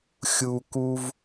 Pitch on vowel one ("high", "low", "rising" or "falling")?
high